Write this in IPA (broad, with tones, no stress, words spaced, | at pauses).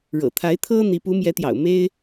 ɻɤ̰˨˩t̪ʰa˧˥ɪ̯t̪ʰɤ˥ n̪i˧˥ pu˧˥mjɛ˧˥t̪jɑ̰˨˩ʊ̯ me˥ɪ̯